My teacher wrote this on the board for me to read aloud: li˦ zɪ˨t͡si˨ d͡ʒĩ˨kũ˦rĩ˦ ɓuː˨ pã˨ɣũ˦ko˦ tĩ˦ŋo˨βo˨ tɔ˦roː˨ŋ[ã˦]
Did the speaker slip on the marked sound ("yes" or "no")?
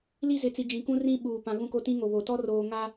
yes